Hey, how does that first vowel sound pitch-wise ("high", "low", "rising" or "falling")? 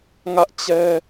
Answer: high